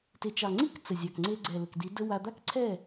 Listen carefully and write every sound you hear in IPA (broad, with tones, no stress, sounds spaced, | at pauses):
t e˨ t͡ʃ ɑ˨ ŋ͡ǀ i˦ k t͡s ə˨ zʲ ɑ˨ k ŋ͡ǀ e˧ ɡ͡ǀ ɛ˨ l ə˨ k d i˨˦ d ə˧ w a˧ d̪ a˦ k ǀʰ ɛ˦˨